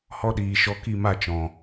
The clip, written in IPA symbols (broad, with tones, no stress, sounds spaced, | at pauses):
h ɔ˦ ɗ iː˨ ʃ ɔ˧ k i˦˨ m a˦˨ t͡ʃ ɔ̃˨